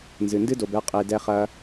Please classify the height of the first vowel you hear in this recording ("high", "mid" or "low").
high